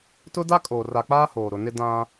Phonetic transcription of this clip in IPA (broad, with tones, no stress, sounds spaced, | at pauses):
t ʊ˦ d a˦ kʼ oː˨ r a˨ k͡p aː˦ h oː˨ ɾ ʊ˨ n ɪ˦ d ã˦